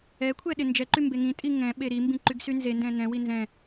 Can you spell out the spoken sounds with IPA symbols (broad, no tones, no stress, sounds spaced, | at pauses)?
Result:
ɛ kʷʰ ɛ ɗ ɪ n d͡ʒ ɛ ǃ y m b e ŋ ĩ tʼ i ŋ ɛ̃ ɓ e ɾ i m b ĩ ǃ y ɡ s y n z e n d ɛ̃ n ɛ̃ w i n z ɛ̃